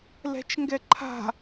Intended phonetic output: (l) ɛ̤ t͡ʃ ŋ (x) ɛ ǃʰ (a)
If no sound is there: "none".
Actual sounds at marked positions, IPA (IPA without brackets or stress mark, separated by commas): l, ɡ, a̤